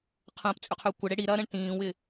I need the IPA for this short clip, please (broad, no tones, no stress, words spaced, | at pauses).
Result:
qʰə̃ːpt͡sʼʏqʰʏː kʷəɽe ɽiɾɐːɾə̃ɳ tĩːwɪ